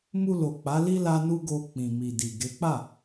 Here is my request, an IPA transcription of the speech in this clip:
m u˧ l o˨ k͡p a˨˦ l i˦ l a˦ n u˦ ɡ o˧ k͡p ĩ˨ m i˨ d i˨ ɡ e˨˦ k͡p a˦˨

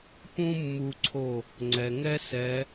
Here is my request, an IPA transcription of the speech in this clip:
p ũ˦ mː u˦ ǀʰ o˥˩ | ŋ͡ǀ ɛ˩ ŋ ɛ˦ s ɛ˨˦

